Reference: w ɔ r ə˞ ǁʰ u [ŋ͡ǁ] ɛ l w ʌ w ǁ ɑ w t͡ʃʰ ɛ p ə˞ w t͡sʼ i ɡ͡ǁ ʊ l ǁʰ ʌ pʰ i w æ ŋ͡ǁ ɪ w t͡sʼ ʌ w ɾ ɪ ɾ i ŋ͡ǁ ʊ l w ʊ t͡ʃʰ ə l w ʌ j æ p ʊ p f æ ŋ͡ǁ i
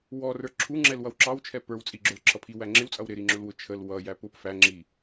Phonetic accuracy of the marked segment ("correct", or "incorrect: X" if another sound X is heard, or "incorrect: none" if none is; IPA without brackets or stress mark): correct